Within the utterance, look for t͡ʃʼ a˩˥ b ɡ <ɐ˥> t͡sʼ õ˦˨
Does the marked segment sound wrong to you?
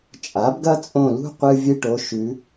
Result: no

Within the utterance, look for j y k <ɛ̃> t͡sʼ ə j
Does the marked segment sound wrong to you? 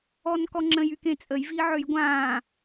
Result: yes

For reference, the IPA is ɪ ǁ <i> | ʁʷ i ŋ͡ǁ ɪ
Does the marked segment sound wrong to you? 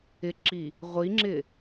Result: no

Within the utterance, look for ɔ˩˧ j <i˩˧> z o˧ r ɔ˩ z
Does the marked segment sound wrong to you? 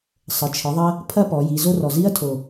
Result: no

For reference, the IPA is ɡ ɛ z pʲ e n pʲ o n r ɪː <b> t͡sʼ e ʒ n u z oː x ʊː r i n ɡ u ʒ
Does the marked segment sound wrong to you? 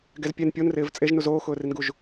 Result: yes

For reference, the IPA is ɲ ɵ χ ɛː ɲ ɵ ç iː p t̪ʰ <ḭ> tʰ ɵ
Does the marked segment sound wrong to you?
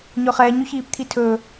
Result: yes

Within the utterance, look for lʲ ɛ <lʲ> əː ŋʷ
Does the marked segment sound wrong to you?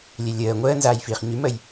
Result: no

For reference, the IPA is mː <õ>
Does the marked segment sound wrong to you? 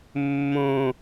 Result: no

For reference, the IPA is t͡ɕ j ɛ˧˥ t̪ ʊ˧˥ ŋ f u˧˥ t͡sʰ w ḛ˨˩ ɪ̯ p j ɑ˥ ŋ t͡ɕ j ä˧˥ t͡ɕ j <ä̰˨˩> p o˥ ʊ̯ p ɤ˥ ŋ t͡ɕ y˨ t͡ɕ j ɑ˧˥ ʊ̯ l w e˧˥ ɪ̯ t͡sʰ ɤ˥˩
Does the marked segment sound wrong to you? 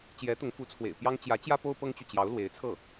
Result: yes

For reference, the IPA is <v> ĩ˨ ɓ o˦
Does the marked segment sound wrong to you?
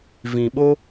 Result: no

